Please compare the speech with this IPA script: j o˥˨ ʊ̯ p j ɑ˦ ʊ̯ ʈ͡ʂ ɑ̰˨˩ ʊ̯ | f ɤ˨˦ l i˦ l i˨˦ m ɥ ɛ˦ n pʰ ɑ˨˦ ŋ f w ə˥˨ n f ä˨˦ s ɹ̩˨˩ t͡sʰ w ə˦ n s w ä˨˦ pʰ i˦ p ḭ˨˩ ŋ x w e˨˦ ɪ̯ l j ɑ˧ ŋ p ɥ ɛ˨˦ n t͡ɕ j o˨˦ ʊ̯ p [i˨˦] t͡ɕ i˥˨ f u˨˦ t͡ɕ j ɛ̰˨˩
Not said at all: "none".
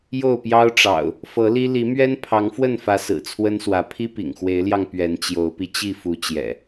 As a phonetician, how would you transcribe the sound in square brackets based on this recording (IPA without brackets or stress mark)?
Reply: i˧